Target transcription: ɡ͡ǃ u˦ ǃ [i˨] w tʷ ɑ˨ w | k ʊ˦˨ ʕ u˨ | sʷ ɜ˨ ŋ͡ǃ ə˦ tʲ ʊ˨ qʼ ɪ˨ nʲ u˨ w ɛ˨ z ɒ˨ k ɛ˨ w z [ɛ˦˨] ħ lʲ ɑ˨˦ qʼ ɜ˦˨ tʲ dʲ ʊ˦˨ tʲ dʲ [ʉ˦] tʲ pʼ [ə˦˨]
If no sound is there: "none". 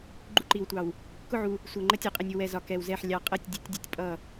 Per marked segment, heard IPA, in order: i˨, ɛ˦˨, u˦, ʌ˦˨

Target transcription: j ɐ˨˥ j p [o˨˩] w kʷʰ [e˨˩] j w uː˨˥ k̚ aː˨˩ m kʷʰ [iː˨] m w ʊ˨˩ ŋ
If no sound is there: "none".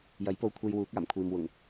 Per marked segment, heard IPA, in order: o˧, e˧, iː˨

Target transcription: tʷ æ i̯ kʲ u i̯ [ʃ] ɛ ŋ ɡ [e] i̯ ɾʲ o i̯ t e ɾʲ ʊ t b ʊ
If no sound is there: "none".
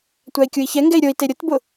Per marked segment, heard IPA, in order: ç, ɛ

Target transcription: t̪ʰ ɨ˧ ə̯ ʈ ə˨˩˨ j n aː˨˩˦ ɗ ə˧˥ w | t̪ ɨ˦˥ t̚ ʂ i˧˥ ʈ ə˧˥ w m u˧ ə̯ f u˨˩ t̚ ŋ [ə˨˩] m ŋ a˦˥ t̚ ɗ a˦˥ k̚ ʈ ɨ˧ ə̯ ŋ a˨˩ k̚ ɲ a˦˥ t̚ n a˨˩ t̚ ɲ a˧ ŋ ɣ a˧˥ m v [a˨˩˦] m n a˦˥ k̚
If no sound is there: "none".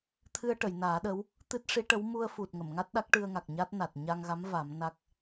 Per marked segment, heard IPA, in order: ə˨˩˨, a˨˩˦

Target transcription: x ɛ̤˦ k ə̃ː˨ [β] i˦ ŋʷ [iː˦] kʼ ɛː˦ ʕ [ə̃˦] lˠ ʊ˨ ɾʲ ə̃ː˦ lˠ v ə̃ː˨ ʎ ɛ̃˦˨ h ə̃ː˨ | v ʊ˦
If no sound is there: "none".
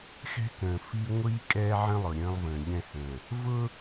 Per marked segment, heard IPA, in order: f, iː˦, ə̃˦

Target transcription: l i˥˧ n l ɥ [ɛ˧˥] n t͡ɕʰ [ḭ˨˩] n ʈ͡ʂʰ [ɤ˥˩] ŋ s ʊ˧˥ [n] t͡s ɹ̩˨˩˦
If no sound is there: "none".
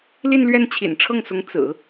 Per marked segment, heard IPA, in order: ɛ˥˩, ḭ˨˩, ɤ˥˩, ŋ

